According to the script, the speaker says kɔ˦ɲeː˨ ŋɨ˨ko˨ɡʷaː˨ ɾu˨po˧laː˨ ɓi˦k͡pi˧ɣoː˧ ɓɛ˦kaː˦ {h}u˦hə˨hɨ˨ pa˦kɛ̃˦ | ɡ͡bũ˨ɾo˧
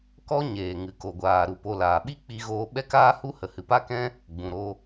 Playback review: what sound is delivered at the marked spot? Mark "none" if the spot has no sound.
h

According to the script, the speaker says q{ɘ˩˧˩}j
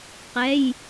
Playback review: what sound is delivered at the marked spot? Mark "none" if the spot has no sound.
ɛ˩˧˩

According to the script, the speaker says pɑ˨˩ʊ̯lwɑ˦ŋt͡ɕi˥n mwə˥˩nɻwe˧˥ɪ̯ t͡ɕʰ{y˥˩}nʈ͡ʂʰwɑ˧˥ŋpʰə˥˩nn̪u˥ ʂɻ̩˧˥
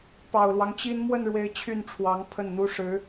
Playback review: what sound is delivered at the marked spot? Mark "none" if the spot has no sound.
y˥˩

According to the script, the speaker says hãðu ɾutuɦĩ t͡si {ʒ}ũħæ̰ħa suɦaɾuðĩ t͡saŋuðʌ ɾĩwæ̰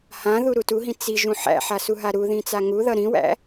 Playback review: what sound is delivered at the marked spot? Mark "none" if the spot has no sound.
ʒ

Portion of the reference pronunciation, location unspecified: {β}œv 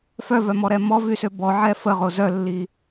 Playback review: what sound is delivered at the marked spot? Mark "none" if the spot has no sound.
f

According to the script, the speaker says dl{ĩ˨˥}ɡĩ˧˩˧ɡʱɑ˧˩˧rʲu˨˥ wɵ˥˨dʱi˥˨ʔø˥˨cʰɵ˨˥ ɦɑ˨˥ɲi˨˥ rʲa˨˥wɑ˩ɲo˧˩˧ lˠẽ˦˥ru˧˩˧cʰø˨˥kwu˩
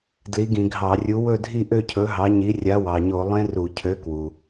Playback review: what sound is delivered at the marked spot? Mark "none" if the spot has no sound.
i˨˥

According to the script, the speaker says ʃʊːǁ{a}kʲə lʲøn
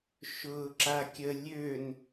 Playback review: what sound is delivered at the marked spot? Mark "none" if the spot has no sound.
a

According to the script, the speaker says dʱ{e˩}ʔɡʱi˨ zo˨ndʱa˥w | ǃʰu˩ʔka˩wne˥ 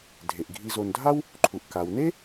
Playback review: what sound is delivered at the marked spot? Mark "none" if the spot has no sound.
e˩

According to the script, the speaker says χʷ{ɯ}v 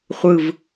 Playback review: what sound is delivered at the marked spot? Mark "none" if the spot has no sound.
ɯ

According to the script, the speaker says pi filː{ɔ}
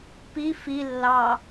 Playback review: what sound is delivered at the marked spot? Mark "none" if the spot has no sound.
ɑ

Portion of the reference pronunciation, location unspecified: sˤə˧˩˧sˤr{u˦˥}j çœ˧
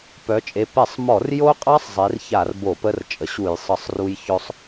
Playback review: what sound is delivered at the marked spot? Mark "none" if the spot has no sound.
u˧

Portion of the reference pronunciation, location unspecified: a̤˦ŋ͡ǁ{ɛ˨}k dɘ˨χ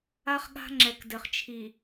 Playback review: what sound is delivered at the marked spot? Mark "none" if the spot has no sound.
ɛ˨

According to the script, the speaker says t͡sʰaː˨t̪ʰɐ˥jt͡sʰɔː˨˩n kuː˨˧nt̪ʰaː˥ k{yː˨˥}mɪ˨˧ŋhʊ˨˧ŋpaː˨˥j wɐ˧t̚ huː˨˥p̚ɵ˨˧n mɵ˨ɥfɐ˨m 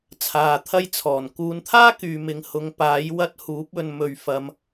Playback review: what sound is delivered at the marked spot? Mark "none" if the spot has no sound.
yː˨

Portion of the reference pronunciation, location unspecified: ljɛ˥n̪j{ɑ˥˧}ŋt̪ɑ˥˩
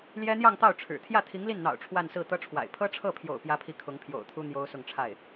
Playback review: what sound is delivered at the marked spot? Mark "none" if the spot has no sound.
ɑ˥˧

